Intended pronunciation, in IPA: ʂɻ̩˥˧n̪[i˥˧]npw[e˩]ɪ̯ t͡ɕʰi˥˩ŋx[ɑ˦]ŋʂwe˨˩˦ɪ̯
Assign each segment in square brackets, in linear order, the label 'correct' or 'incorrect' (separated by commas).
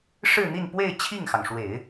correct, incorrect, incorrect